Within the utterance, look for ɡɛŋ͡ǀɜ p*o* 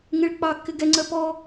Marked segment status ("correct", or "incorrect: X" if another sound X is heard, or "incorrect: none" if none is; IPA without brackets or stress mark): incorrect: ɔ